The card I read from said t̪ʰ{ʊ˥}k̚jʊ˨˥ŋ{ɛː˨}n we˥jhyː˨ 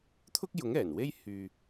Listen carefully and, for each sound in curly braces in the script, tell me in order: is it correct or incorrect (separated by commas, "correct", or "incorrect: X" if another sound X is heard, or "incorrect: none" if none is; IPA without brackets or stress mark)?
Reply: correct, incorrect: ɛː˨˩